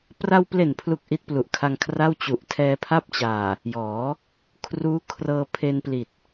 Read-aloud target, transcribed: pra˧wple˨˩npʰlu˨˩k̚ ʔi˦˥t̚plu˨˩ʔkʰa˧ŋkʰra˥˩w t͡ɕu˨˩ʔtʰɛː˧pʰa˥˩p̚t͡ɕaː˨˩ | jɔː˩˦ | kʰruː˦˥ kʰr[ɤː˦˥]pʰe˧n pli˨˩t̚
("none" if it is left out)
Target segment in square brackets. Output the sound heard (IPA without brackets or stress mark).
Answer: ɤː˧